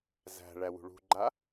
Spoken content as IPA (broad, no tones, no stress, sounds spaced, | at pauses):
z æ̤ ɭ æ w ṳ ɭ ṳ ɡ͡ǃ a